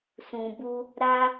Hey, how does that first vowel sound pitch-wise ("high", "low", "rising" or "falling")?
low